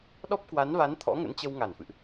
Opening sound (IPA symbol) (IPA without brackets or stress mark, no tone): ɗ